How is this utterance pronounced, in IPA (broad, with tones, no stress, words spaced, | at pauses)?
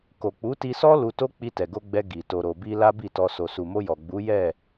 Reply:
ko˨k͡pu˨˦ti˧sɔ˦ lu˧to˦ k͡pi˧tɛ˨ɡo˧ ɡ͡bɛ˧ ɡi˨ to˨ɾo˨bi˧ la˦bi˦˨tɔ˧ so˨su˨mo˧jɔ˨ ɡ͡bu˨˦jɛ˦˨